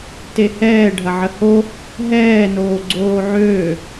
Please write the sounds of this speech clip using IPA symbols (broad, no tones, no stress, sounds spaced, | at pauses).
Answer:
t e h ɛː ɖʱ ɐ ʕ ə h o | ɦ ɛː n oː ɡ͡ǀ oː ʕ øː